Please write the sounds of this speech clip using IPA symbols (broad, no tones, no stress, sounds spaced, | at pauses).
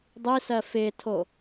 dˤ i s ɜ f ɪː tʰ o